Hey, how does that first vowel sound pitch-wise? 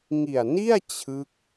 low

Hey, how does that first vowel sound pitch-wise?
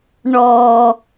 low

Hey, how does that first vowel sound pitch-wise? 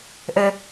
low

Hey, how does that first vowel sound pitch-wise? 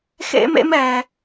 high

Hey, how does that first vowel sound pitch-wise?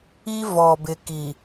high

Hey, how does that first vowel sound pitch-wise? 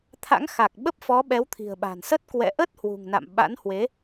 rising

